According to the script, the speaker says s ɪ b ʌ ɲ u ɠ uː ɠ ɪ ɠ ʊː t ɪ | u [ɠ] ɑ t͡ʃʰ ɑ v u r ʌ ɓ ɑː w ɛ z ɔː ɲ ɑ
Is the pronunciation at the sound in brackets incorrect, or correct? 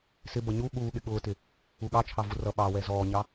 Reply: correct